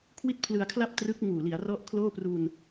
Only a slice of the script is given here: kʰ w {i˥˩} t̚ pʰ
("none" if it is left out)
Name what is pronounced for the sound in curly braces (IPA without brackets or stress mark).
i˥˩